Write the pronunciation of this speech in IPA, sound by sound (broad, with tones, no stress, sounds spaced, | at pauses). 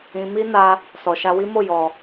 ĩ˧ m i˦ n a˧ | s ɔ˨ ʃ a˧ w i˦ m o˦˨ j ɔ˨